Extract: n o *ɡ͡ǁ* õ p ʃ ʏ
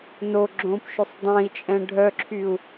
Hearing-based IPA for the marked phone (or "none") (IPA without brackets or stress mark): ɡ͡ǁ